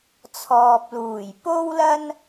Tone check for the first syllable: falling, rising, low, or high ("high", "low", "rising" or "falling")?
low